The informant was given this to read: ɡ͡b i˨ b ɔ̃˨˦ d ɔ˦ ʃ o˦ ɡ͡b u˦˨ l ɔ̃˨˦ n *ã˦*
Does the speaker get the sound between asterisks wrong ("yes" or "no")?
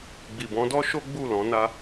yes